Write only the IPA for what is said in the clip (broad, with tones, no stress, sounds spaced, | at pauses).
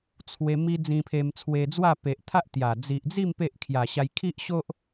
t͡sʰ w e˧ m i˦ d͡z ĩ˧ pʰ e˧ m t͡sʰ w e˧ d͡z w a˥˧ p e˨ ʔ t̪ʰ a˦ ʔ t̪ j a˨˩ d͡z i˨ ʔ d͡z i˥˧ m p e˦ ʔ kʰ j a˨˩ ɕ a˧ j kʰ i˦ ʔ ɕ o˦ ʔ